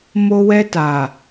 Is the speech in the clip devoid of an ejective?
yes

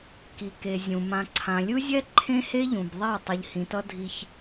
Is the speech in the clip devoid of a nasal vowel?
no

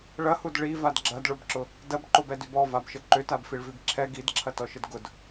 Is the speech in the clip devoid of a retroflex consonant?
no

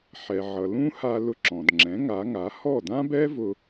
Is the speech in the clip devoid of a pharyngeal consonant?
no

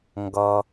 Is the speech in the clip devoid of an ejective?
yes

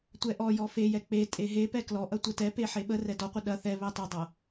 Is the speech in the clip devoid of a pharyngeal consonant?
no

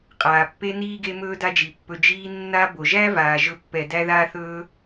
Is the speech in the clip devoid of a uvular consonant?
no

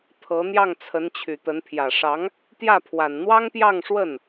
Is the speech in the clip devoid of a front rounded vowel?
no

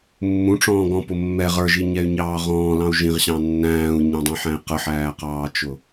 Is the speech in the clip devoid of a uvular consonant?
no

